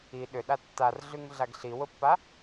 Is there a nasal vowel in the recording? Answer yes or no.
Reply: no